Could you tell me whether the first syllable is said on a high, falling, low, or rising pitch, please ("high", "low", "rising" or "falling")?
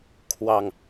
low